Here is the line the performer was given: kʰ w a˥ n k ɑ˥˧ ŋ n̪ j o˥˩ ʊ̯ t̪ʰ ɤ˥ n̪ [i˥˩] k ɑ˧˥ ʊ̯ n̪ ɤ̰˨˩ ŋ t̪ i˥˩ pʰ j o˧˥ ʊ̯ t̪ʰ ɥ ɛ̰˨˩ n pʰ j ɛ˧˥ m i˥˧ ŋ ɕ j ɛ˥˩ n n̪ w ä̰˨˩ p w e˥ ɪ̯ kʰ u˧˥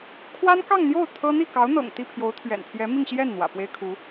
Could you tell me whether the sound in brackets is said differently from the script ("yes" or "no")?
no